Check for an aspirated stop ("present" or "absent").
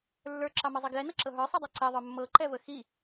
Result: absent